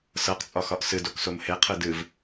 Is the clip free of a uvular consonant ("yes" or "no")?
no